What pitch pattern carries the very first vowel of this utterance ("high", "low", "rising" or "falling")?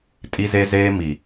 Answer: high